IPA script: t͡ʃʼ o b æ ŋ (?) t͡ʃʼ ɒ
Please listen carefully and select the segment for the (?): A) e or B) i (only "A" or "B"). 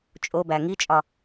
B